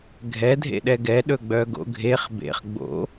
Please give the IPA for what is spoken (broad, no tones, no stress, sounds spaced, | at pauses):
ɡʱ ɛ dʱ ḛ ɗ ɛ ɡ ɛ ɗ ɵ ɡ͡b œ ɡ o̰ ɡʱ e χ b ḛ χ ɡ͡b o̰